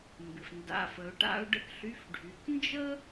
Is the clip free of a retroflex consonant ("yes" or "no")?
no